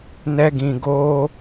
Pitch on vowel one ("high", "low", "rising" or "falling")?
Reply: high